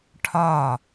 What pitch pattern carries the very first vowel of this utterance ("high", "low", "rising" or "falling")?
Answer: falling